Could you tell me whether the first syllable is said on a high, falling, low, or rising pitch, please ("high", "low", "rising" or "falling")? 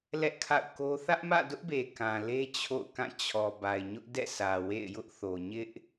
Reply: high